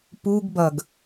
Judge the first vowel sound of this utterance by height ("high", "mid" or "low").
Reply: high